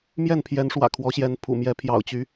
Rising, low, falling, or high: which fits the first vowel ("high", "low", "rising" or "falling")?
falling